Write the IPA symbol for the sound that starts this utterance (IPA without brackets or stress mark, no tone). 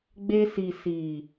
ɡ͡b